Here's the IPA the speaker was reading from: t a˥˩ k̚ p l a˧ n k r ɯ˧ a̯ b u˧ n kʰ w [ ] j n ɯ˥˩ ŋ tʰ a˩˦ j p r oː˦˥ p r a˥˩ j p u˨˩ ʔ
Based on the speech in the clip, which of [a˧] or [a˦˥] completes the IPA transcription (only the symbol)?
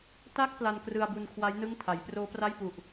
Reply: a˦˥